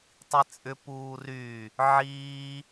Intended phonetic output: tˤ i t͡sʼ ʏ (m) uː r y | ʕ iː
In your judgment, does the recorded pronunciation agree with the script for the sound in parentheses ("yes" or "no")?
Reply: no